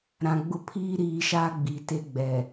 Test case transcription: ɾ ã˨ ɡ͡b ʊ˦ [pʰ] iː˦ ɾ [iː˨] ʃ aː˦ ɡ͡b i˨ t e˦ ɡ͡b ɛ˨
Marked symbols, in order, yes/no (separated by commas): yes, no